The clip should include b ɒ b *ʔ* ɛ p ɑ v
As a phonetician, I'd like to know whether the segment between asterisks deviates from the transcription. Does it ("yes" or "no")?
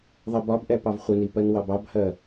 no